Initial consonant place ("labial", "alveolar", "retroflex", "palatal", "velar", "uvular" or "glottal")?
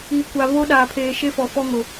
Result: velar